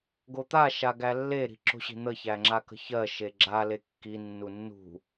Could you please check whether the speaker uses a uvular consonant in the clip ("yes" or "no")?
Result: no